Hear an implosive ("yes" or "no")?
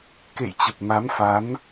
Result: no